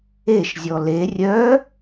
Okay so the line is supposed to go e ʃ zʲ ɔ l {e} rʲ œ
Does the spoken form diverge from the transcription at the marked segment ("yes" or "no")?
no